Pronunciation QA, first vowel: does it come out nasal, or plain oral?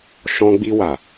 nasal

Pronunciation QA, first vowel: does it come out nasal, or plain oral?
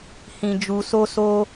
nasal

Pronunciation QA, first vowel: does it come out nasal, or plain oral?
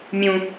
nasal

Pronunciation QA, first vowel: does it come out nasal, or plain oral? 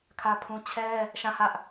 oral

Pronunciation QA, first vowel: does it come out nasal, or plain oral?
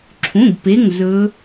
nasal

